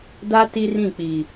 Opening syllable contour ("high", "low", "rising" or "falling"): high